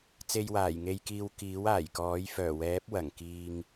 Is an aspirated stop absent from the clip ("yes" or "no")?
yes